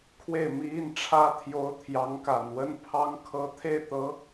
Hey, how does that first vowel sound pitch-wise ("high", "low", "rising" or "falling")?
falling